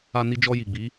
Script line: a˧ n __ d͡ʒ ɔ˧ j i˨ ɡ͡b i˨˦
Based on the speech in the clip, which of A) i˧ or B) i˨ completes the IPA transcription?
A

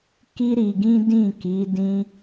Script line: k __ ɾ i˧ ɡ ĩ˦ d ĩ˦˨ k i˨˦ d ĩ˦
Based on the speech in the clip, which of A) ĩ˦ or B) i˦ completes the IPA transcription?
B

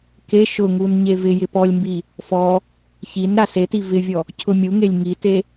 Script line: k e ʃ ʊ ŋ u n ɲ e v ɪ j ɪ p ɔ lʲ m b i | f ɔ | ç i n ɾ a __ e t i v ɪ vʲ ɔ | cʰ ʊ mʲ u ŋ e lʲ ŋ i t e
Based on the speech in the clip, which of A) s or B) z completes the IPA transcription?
A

